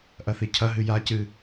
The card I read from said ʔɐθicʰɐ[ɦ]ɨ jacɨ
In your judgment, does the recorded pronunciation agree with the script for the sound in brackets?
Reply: yes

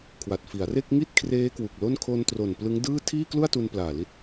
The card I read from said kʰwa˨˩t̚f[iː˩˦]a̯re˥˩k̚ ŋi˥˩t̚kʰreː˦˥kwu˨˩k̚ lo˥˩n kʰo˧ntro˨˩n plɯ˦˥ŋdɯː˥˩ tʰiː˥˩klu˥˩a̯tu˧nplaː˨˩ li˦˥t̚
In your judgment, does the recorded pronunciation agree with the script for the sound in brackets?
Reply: no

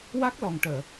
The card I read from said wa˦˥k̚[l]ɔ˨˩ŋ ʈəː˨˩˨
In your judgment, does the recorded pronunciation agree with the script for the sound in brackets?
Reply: yes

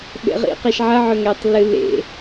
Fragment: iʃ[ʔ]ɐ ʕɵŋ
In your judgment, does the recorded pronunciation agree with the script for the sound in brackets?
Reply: no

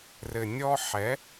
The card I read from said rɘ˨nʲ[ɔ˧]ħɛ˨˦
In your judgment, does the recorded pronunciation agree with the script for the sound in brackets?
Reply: yes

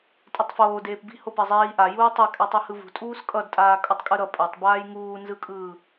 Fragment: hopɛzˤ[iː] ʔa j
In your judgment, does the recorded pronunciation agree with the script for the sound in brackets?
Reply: yes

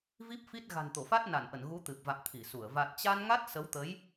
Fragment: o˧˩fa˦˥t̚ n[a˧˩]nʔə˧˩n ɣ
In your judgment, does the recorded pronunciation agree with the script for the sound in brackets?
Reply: yes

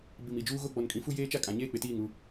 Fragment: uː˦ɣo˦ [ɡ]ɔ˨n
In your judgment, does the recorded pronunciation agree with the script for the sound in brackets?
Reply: no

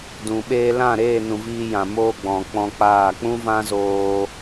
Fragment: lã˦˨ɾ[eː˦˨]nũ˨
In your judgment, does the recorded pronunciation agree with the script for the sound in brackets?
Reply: yes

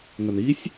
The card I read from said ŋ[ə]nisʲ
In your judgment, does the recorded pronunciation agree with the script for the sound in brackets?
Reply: yes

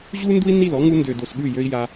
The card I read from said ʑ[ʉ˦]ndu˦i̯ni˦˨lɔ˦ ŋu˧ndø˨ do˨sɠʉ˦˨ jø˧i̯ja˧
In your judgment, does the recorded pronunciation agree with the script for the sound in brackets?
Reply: no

